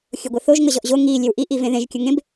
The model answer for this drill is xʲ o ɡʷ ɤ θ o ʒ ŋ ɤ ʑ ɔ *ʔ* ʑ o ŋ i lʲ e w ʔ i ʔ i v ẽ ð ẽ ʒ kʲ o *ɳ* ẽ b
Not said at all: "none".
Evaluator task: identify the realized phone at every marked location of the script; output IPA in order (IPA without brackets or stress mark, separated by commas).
ʔ, ŋ